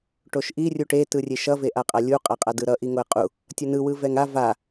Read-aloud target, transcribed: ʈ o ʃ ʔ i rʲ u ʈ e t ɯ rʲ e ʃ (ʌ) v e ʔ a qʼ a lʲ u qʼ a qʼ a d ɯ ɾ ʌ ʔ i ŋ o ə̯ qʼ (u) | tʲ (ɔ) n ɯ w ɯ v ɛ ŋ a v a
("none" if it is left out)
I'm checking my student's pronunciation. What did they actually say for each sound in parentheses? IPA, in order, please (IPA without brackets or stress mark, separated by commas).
ʌ, u, ʌ